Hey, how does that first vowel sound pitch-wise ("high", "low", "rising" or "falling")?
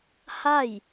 falling